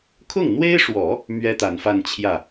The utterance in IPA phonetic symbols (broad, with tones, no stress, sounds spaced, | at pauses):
kʰ ʊ˥˩ ŋ n̪ w e˥ ɪ̯ ʂ w ɔ˨˩˦ | m ɥ ɛ˥ t̪ a˨˩ n f a˥˧ n t͡ɕʰ j ä˥˩